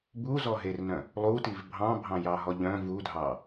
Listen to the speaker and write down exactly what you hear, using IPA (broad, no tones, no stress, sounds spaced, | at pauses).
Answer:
b u z ɔ ɦ e r n œ̃ | lˠ u t i v bʱ ɑ̃ bʱ ɑ̃ j ɑ ɦ ɔ ʎ œ̃ v u dʱ ɑ